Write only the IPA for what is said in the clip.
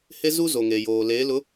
he˦zu˦ zo˨ŋe˨joː˨leː˨˦ lʊ˨˦

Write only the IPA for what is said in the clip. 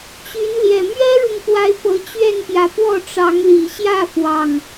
t͡ɕy˨˦nljɛ˨˩ mɥɛ˦ɻʊ˨ŋpwa˨˦ɪ̯ pɤ˨˦t͡ɕɥɛ˥˨npjä˨˦pwɔ˥˨ ʈ͡ʂɑ˨˦ŋli˨˩ɕjä˥˨fwɑ˨˩ŋ

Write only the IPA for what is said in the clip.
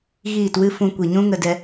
ɣiː˦˨twɨ˦fũ˧ kʷi˨ɲũ˦ŋə˧dɛ˧

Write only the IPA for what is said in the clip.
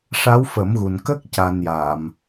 ʂa˧˥wfə˨˩˦mɣu˨˩n kə˦˥k̚ ca˧nja˨˩˨m

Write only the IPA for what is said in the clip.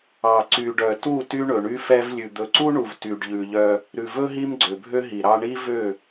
ɑ˨ ǀy˨ɖœ˨tu˦˨ ty˦ɳɵ˨ɳy˦fɛ˦v lʲʉ˨d̪ɵ˨ǀu˦ɳu˨v ty˨ɖʎʉ˨ʎœ˦ | ɾʉ˨vɵ˦ ɦi˦mɡ͡ǀø˨bʱø˦ ɦi˨ɾɑ˦ ɳi˦vø˦˨

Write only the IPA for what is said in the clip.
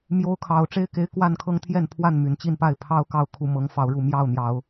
mjo˦ʊ̯kʰɑ˨˦ʊ̯ ʈ͡ʂe˦ɪ̯ke˨˦ɪ̯ kwa˥˨nkʰɤ˦ŋt̪ʰjɛ˥˨n pʰwa˥˨n my˨˩nt͡ɕi˥˨npa˥˨ɪ̯ pʰɑ˦ʊ̯ kɑ˥˨ʊ̯kʰu˥˨ mɤ˨˦ŋ fɑ˨˦ʊ̯ɻu˥˨ mjɑ˥˨ʊ̯n̪jɑ˨˦ʊ̯

